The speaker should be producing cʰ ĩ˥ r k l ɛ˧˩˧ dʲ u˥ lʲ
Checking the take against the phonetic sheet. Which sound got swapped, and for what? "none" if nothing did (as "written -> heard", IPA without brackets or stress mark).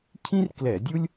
none